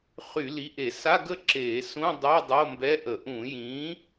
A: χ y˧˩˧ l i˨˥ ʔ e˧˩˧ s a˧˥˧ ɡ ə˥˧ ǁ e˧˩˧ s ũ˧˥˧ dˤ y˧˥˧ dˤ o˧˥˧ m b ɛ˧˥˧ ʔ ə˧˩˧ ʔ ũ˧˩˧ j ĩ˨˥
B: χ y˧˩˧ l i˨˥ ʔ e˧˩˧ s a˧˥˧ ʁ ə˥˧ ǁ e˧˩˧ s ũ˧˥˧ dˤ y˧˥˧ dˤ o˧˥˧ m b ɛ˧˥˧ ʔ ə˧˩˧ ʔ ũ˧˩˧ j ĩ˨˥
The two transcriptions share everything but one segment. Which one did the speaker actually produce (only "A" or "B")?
A